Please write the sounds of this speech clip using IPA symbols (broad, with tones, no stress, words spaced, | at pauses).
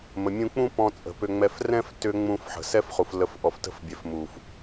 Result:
mə˨mʲũ˧k͡pũ˦ pɔ̃˧t͡sʼə̤˨pʏ˧ŋ͡mɛ˧f rɛ̃˦ftʏ˧ ŋ͡mũ˧fħə̤˨ sɛ˦fχu˨f lə˨˦fʔɔ˨ftə̤˧fbʲɛ˨f mu˨f